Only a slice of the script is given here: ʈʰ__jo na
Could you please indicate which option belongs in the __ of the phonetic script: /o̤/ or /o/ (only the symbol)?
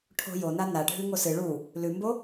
o̤